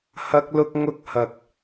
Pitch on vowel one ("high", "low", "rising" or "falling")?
high